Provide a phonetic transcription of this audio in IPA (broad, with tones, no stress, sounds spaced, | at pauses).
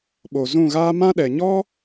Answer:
ɓ o˨ z ũ˦˨ ɣ aː˦ m ã˦ ɗ ɛ˨ ɲ ɔ˦